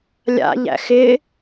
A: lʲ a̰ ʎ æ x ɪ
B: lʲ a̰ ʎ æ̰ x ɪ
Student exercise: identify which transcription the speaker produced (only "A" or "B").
B